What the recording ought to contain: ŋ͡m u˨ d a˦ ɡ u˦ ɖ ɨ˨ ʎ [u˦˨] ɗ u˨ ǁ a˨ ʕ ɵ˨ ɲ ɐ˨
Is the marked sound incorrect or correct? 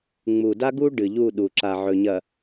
correct